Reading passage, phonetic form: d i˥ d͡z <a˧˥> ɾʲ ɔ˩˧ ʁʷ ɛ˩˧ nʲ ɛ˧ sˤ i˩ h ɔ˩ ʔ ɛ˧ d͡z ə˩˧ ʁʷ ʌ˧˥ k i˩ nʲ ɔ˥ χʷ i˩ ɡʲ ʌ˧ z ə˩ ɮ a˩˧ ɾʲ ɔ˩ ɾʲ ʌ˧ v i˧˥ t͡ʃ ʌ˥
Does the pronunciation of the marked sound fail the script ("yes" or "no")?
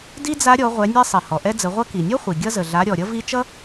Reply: no